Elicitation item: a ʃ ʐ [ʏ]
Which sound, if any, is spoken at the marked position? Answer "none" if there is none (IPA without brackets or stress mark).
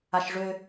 ʏ